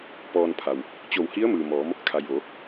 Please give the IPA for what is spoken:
p ɔː˧ n pʰ a˩ w | t͡ɕ o˧˩ w h i˧˥ ə̯ m ɯː˩ m ɔː˩˧ m | kʰ a˩ j ʋ o˩˧

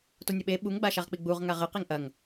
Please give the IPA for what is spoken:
t o nʲ ɐ ɓ e ɓ u ŋ ɡ͡b a ʃ a ʁ k͡p i ɡ͡b u ʁ ŋ a ʁ ɘ q i ŋ ʔ ɐ ŋ

